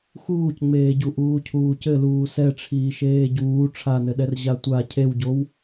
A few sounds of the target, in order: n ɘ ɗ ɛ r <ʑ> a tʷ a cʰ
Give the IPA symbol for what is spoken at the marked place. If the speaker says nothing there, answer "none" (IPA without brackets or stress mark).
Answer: ʑ